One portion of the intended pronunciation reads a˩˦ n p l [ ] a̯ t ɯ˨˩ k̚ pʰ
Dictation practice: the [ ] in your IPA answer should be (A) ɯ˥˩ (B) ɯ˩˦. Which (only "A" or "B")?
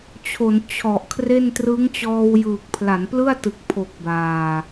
A